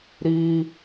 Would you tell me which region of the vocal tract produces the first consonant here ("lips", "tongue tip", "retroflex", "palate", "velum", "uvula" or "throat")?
tongue tip